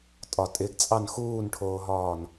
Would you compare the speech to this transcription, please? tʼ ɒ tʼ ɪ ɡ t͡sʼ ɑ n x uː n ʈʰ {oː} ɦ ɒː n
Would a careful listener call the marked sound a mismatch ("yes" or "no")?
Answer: no